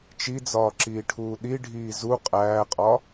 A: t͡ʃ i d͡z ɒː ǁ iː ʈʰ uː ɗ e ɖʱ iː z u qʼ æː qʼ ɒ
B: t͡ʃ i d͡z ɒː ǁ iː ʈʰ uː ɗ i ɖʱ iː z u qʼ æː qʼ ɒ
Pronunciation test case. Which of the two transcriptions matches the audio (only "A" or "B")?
B